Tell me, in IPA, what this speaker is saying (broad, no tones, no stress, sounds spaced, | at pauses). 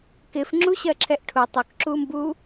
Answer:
k ɪ f ŋ͡ǁ u ɕ ɜ ǁʰ ɛ ʔ ʈʰ u tˤ ʊ k ǁ u m b u